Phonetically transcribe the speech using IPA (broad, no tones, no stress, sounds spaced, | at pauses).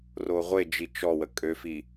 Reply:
r o ʁʷ e d͡ʒ i t͡ʃ ɔ w ə kʼ ø f i